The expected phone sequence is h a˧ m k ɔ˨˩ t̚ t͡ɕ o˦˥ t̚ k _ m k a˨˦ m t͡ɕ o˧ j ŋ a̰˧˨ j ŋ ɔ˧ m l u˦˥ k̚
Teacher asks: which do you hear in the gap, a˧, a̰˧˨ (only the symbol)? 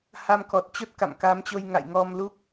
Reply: a̰˧˨